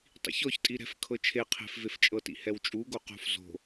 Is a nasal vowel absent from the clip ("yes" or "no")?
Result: yes